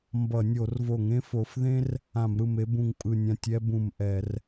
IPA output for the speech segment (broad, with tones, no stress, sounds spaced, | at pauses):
m b ʌ˧˩˧ nʲ o˧˩˧ r v o˧˩˧ ŋ ẽ˥ f o˨˦ f ð ẽ˥ r | ã˧˩˧ m ɾ ɯ˧˩ m e˥ b ũ˧˩ ŋ pʼ ɯ˧˩ nʲ ã˧˩ tʲ ɛ˥ b ũ˧˩ m ʔ ɛ˧˩˧ r